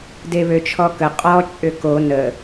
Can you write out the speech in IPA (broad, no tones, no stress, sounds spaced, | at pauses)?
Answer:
d e β ø t͡ʃʰ ɔ k ə qʼ ɔ t͡ʃʼ ʏ k o n ə